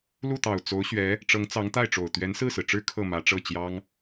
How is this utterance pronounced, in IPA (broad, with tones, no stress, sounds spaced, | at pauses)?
l u˥˩ t̪ ɑ˨˩ ʊ̯ t͡s o˧˥ ʊ̯ ɕ ɥ ɛ˧˥ | ʈ͡ʂ ɤ˧˥ ŋ t͡s ɑ˧˥ ŋ t̪ a˥˩ ɪ̯ ʈ͡ʂ o˨˩ ʊ̯ t̪ ɥ ɛ˧˥ n s ɹ̩˥˩ s ɹ̩˩ ʈ͡ʂ ɻ̩˥ kʰ ɤ˥˩ m ä˧˥ ʈ͡ʂ ɤ˥˩ t͡ɕ j ɑ˥ ŋ